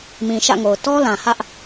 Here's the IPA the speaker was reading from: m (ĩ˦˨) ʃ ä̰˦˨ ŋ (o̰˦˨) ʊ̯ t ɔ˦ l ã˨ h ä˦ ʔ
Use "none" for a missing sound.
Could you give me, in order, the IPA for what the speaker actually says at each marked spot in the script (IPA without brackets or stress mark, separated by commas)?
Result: ĩ˨, o˨